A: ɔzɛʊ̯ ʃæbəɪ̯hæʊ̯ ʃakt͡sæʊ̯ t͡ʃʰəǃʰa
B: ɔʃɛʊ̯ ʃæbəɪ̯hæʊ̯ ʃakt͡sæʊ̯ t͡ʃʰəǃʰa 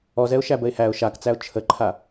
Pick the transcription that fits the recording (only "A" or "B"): A